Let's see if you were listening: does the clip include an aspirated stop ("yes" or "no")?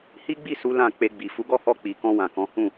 no